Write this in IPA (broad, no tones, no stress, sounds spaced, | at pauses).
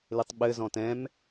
l ɨ tˤ ɓ ɘ z ɔ̃ t ɛ̃ m